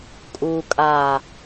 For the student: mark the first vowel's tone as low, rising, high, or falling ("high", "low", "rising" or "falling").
low